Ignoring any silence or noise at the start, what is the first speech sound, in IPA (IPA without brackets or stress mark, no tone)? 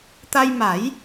t̪